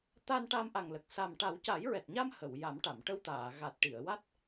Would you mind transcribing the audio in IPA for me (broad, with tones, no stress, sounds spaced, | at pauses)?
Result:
t̪ a˧ n ʈ a˧ m ʔ a˨˩ ŋ l ə˨˩ k̚ s a˨˩ m ʈ a˨˩˦ w c a˨˩˦ j ɹ ɛ˨˩ t̚ ɲ a˧ m h ə˨˩˨ w j a˨˩˦ m ʈ a˨˩˨ m ʈ ə˧ w t̪ aː˨˩˨ ɣ a˨˩ t̚ ʈ i˨˩˨ ə̯ w a˦˥ t̚